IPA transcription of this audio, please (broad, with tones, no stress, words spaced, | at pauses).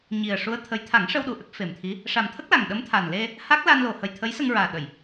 ɲi˨˩ə̯ʂu˧˥ə̯t̪ʰə˧˥j t̪ʰa˨˩˦ŋʂə˧wɗu˨˩˨ʔə˦˥k̚ fe˨˩mt̪ʰi˧˥ | ʂa˨˩mt̪ʰə˦˥k̚la˨˩ŋ ɗə˧˥mt̪ʰa˨˩n le˧ | ha˦˥k̚ la˧nlo˨˩hə˨˩j t̪ʰə˧˥jsə˧ŋɹaː˨˩ ɗə˨˩˨j